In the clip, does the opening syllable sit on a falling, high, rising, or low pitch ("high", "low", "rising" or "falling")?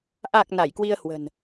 low